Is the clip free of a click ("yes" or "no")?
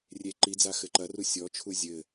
no